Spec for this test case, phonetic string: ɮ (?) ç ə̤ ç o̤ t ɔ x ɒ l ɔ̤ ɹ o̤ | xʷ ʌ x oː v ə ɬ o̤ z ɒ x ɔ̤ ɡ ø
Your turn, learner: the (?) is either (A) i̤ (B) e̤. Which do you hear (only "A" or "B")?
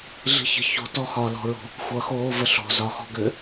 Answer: A